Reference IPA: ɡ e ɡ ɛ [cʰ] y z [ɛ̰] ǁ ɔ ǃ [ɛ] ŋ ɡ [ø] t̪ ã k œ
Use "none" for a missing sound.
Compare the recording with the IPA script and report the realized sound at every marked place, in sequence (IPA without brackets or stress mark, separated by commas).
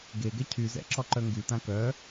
cʰ, ɛ̰, œ, y